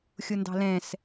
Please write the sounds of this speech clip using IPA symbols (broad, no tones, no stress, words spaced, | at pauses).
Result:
xʲʊndɑ̤lɛ̃s